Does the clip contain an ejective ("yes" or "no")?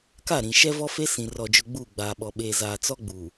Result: no